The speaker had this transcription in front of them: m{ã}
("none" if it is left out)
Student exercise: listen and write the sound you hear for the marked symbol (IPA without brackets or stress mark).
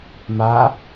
a